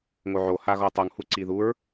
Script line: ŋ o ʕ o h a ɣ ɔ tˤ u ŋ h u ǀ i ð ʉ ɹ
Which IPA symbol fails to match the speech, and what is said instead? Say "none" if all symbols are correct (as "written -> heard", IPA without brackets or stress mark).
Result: ʉ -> u